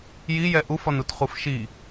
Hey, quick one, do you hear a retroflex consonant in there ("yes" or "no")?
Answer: no